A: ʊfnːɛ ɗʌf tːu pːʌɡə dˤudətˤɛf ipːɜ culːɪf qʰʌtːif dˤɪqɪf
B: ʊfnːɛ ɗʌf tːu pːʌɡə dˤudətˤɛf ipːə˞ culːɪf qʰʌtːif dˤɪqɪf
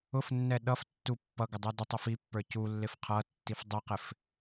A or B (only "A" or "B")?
B